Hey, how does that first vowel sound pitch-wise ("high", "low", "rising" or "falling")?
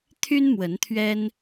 high